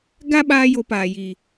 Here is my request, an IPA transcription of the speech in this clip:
ɡ a˦ ɓ aː˦ j o˧ p aː˨ j i˨

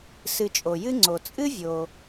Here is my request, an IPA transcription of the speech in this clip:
s ɨ˨ t͡ʃʼ o˩ j ɨ˦ ŋ͡ǀ o˩ t͡sʼ ɨ˥ vʲ o˩

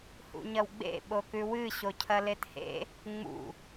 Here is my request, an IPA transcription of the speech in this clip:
h ṵ ɲ ɐ w ɡ͡b ḛ ɓ o k ʉ w ɨ ɕ o cʰ ɐ l e t h ḛ | ŋ͡m ṵ

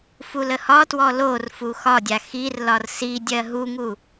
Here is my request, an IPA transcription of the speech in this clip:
f u l ə h ɒ t w ɔ l o r f u x ɒ dʲ a x i r l ɒ r s i dʲ ɜ ɦ u ŋ u

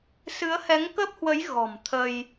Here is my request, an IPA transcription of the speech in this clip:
s ɨ˨˦ ə̯ h ɛ˨˦ ŋ k ə˦˥ p̚ h w ə˨˦ j ɣ ɔ̤˨˩ m t̪ʰ ə˧ j

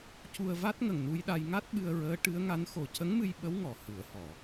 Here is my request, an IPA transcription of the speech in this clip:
c u˧ ə̯ v a˦˥ t̚ ŋ ə˨˩ ŋ n u˧ j ɗ a˧ j ŋ a˦˥ t̚ ɓ ɨ˧ ə̯ ɹ əː˧˥ ʈ ɨ˧˥ ə̯ ŋ a˧˥ n x o˨˩ c ə˧˥ ŋ m ɨ˧ j ɓ ə˧˥ w ŋ ɔ˨˩˨ h ɨ˨˩˨ ə̯ h ɔ˨˩˨

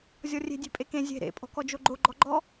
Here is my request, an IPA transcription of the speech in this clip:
zʲ ɔ rʲ e̤ dʲ e̤ pʼ e k ẽ zʲ e̤ ɾ ḛ pʼ ɔ̤ k ɔ d͡ʒ o ɡ͡ǃ o ɡ͡ǃ ɔ ɡ͡ǃ ɔ

